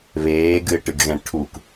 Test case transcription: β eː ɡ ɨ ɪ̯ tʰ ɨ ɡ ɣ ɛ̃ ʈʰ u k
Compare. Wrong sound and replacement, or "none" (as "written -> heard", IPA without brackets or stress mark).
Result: tʰ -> ʈ